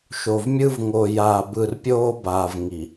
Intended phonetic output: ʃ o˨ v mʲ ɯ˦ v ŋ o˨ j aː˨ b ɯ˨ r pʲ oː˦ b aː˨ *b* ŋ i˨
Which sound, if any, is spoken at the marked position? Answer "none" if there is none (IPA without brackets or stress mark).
v